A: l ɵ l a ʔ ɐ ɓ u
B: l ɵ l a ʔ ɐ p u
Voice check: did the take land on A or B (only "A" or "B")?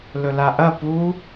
B